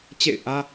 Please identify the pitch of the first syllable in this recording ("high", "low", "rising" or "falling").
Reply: falling